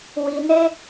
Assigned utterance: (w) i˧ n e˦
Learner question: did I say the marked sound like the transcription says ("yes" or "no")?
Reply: yes